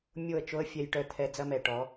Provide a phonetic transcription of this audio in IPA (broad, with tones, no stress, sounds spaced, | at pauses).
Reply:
mʲ o˦˨ ə̯ t͡ʃ o˦ ə̯ fʲ ɛ˧ j ʈ œ˧ t̪ʰ ɛ˧ d͡z ɐ˦ m ɛ˨ ʈ ɔ˨˦